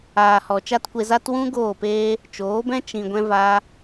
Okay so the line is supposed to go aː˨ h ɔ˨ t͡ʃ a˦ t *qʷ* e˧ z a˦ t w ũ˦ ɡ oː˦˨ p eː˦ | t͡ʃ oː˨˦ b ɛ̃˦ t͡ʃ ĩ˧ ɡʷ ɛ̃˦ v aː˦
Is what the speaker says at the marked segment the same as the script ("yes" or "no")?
no